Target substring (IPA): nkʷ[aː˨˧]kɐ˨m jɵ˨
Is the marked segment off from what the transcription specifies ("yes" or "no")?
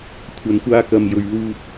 yes